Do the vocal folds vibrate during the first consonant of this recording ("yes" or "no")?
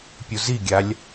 no